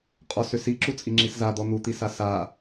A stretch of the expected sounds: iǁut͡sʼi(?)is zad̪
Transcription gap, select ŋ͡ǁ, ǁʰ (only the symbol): ŋ͡ǁ